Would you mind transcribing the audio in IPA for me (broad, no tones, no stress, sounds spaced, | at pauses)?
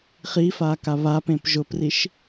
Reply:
χ i f a k a β a p ẽ p ʒ ʊ p r i ʃ